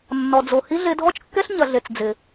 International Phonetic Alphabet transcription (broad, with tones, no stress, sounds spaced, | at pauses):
nː ɔ˨ d͡z o˨ h i˦ ɮ e˧ dʱ ɔ˦ t͡ʃ kː ɛ˦ ɬ ɲ ɐ˨ ɮ e˨ t͡s d͡z ɪ˨